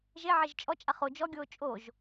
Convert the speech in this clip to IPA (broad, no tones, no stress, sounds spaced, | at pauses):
ʒ e ʕ e ʒ t͡ʃʼ ɔ t͡ʃʼ a χ o d͡ʒ ɔ ɡʲ oː t͡ʃʼ o ʒ